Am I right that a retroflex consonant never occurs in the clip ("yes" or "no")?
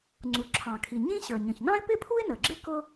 yes